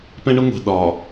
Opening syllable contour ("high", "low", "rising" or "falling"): high